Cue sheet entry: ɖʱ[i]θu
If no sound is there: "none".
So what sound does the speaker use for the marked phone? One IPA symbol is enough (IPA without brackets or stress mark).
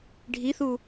i